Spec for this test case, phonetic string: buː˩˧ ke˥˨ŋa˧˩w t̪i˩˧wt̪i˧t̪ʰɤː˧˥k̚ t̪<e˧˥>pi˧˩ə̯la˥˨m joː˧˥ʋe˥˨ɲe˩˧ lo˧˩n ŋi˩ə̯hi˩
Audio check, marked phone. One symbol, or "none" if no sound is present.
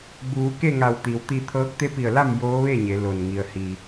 e˧˥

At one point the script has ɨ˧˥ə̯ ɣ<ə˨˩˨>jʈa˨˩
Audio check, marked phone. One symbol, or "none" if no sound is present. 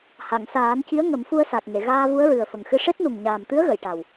ə˨˩˨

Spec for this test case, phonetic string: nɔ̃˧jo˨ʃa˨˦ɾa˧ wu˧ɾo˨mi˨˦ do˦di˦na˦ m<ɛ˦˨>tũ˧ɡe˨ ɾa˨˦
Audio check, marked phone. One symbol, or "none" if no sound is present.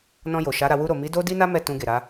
ɛ˦˨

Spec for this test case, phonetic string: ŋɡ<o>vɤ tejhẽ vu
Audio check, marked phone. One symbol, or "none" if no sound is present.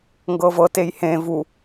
ɤ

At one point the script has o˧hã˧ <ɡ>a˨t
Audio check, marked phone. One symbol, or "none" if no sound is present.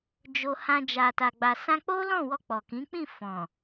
d͡ʒ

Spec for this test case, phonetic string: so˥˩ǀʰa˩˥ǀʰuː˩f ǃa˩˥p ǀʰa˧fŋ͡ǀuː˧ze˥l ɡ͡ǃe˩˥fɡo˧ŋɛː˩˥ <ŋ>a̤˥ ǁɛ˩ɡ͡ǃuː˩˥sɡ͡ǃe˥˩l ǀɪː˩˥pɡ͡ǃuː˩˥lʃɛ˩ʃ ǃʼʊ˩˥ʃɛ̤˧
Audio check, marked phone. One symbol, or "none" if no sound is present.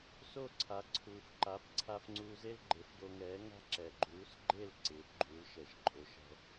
ŋ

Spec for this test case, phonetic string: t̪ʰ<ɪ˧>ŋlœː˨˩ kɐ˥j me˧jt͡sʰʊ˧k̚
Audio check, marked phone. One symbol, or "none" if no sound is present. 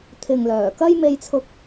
ɪ˨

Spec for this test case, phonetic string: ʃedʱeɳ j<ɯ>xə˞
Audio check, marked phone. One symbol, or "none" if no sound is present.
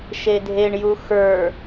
u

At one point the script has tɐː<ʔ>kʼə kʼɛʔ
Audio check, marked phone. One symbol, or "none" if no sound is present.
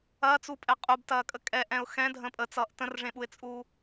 none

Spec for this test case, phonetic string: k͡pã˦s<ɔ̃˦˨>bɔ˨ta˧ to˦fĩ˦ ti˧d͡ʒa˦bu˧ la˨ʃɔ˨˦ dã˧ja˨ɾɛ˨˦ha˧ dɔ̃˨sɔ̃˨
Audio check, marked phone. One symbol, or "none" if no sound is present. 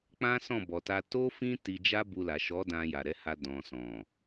ɔ̃˦˨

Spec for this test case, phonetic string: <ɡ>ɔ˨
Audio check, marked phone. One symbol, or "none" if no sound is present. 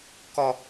k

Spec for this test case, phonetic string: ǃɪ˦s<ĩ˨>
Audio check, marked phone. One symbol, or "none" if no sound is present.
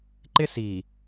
i˨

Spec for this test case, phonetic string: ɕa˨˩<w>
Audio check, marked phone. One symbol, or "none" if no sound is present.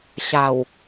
w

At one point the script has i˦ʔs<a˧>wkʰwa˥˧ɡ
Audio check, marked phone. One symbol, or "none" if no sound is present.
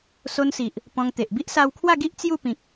a˧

